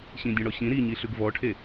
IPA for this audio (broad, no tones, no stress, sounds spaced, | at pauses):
ɕ ĩ dʲ ɔ̃ ɽ ɔ ɕ ĩ ɾ i ɲ i ɬ ʉ ɡ v ɔ ʈʰ e